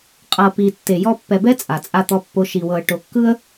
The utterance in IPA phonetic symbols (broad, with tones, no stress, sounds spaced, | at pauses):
qʼ ɤ˨ p i˨ tː e˨ j ɔ˦ pː ɛ˨ b ɛ˦ t͡sʼ a˨ t͡sʼ a˦ t̪ ɔ˦ pː o˦ ʃ i˨ w ɤ˨ ə̯ ʈ o˨ kː ɯ˦ ə̯